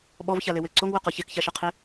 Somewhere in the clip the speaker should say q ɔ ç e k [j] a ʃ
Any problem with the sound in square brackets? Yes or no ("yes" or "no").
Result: yes